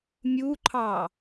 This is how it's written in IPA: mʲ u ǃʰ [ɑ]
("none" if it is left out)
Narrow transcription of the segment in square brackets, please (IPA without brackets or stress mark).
ɑ